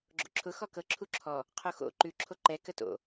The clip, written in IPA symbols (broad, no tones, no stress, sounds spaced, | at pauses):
ɡ͡ǁ o̰ ǁʰ ʊ x ɔ k ɤ ǁʰ u ǁʰ ɔ | qʰ o x o̰ ǃ ʉ ǁʰ o ǃ ɛ k ə t o̰